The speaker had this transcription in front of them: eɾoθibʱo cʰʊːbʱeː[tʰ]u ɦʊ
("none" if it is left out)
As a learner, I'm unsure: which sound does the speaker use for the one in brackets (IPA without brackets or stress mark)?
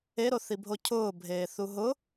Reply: θ